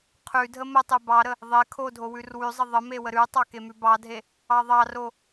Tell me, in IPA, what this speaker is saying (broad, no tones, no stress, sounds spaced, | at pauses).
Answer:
qʰ ʉ dʱ ə m ə tˤ e b ɑ ɾ ə | ðˤ e kʰ o dʱ o w ʉ r w ʉ zˤ ə ðˤ ə m e w ə ɾ ʉ tˤ ɑ k e m ʉ b ɑ dʱ e | ɑ ðˤ ɑ r o